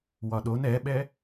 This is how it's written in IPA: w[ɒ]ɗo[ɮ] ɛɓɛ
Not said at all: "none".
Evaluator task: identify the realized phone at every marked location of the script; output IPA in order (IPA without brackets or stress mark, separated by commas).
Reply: ɒ, n